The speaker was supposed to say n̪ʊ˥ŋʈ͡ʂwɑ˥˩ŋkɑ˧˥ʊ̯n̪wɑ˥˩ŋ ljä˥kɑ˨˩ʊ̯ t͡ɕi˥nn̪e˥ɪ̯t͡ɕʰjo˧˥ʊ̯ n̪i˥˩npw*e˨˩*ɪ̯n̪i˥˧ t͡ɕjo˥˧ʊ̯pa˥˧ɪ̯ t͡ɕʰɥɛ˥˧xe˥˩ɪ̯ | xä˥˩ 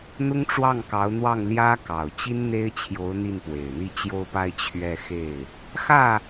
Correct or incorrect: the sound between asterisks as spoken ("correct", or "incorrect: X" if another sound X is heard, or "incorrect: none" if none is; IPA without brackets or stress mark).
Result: correct